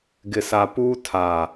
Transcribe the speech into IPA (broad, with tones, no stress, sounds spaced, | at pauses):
ɡ ɪ˨ s a˨ p uː˦ tʰ a˨